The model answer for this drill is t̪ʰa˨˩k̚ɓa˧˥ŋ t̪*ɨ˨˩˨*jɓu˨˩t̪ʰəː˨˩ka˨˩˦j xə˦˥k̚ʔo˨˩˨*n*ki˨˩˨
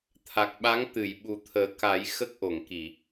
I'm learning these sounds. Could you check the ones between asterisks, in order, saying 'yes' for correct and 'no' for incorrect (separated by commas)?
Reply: yes, no